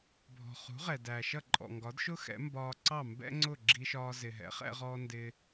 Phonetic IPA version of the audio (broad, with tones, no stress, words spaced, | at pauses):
bʱɔ̤˩χṳ˩˥ ʁɛ˩dæː˩ʃʌ˥˩ ǃʼɔ̰˩ŋɡɒ˩˥dʃʊ˥ xɛ̰˩˥mbɒː˧ ǀɑ˥˩mbɛ̰˥ŋ͡ǀʊ˥˩ ɡ͡ǁi˧ʃɒː˧ zɪ˩ɦɛ̰˩˥χɛ̰˧ʁɔː˧ ndɪː˧